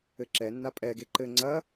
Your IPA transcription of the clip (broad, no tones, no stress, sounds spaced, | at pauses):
ɘ ǁ ɛ nː a pʼ ɛ ɡ e ǃ ɘ ŋ͡ǀ ɐ